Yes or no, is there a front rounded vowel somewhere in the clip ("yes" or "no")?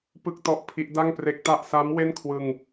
no